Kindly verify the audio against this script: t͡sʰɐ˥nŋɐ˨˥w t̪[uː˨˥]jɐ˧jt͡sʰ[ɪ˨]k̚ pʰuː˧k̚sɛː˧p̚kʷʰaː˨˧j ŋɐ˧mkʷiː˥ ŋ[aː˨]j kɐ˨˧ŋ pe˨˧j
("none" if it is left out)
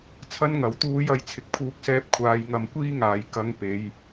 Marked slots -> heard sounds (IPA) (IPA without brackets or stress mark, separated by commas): uː˧, ɪ˨, aː˨